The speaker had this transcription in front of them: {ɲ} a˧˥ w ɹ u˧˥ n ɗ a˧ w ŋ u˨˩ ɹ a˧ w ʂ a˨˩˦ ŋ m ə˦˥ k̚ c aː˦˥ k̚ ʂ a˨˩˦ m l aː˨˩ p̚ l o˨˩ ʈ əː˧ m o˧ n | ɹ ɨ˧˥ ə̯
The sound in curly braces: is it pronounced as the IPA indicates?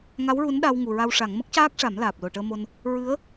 no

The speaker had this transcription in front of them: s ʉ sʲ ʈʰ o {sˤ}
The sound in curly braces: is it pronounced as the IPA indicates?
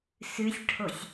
no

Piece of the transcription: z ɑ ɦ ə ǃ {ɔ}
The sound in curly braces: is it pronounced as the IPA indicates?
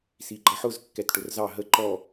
yes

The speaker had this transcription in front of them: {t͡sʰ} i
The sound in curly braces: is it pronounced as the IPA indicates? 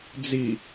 no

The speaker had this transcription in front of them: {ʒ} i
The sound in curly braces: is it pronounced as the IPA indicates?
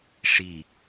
no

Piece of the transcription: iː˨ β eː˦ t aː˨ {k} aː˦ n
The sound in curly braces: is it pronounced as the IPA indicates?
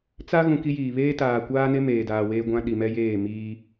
no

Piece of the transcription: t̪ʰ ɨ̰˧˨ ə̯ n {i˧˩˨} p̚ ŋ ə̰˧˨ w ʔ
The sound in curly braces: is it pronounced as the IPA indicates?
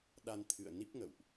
no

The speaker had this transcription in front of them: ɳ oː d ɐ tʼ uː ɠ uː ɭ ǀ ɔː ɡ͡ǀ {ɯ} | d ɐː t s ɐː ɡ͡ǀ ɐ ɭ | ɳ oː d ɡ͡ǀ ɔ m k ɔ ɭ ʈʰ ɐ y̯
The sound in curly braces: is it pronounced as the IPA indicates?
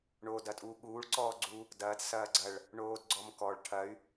no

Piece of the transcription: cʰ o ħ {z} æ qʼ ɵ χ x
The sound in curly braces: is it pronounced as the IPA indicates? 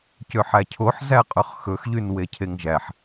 yes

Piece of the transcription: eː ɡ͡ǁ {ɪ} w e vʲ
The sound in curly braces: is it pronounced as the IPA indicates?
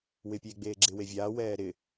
yes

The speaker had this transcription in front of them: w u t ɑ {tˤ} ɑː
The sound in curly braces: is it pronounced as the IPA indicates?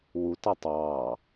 yes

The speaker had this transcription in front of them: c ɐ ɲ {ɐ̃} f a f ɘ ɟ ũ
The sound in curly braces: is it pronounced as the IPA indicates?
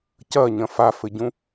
yes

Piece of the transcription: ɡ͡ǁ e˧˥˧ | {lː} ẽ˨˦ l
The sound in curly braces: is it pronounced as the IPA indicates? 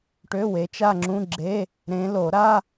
no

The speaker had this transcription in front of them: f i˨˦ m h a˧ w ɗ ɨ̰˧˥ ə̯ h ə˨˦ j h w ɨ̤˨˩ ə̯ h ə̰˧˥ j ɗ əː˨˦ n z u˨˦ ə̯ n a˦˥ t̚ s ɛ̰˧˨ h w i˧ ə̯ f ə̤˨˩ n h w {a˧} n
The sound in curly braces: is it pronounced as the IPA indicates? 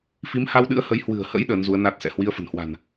no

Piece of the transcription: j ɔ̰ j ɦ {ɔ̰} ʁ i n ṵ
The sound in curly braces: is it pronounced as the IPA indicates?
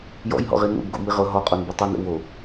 yes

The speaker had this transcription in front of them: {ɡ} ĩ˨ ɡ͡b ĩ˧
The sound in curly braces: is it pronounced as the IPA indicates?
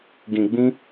yes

